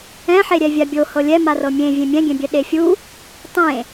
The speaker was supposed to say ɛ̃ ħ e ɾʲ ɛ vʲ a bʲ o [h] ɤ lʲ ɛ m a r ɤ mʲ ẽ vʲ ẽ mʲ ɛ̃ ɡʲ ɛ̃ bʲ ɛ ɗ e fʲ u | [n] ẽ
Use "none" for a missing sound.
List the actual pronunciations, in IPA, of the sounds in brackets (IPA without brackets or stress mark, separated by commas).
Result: h, tˤ